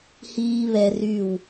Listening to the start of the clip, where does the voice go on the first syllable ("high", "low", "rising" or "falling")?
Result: high